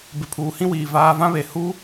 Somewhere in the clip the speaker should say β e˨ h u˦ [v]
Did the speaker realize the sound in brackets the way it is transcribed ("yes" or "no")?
no